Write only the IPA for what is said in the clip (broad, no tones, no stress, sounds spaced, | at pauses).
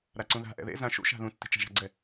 ɾ a ǀ ũ ð a̤ ʔ ɛ̰ ð ḛ z ã ʃ ṵ ʃ a̤ ð ũ tː i̤ t͡ʃ a̤ ʒ a̤ ɡ͡ǀ ɛ